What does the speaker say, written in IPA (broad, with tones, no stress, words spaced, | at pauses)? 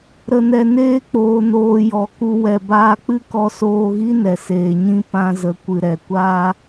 ɾə˨nɛ˨neː˧ k͡poː˨noː˨ jɔ˨ku˧ wɛ˨baː˧k͡pɨ˦kɔ˧ soː˧ɣi˦ nɛ˨seː˨ɲĩ˦ pã˧zə˨ kʷɨ˨ɾɛ˨kʷaː˦